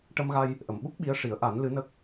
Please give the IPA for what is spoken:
ʈə˧mɣa˧j | ʔə˨˩˨mɓu˦˥k̚ ɓi˧˥ə̯ʂi˨˩˦ə̯ ʔa˨˩˦n lɨ˧˥nə˦˥k̚

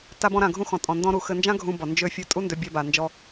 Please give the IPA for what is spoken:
ta˧bɔ̃˧ɾã˩ ɡʱũ˧xɔ̃˩ tʼɔ̃˩ ndɔ̃˧ɾu˩ xɘ˧nd͡ʒã˥ɡʱũ˧bɔ˩ nd͡ʒø˧ fʲɘ˧ tʼu˥ndø˧bʲɜ˧ba˩ nd͡ʒɔ˧

